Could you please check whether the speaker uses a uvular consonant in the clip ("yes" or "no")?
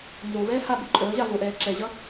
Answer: no